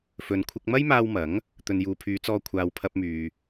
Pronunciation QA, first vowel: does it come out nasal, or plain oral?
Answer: oral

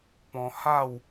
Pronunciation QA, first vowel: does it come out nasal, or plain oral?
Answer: nasal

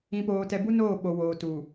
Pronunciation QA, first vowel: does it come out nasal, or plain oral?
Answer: nasal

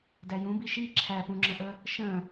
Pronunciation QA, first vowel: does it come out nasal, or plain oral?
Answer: oral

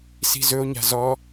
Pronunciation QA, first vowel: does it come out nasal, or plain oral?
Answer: oral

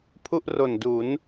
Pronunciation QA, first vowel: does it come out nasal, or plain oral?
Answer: oral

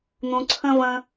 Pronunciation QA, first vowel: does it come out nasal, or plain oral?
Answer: nasal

